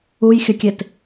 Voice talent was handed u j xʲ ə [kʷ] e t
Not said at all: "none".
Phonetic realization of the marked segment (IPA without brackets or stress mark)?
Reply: kʲ